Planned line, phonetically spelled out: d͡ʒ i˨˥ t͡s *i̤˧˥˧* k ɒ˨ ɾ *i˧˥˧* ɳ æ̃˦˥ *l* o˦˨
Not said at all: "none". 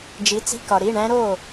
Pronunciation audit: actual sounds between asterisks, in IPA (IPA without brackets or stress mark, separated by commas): i̤˧˥˧, i˧˥˧, ɾ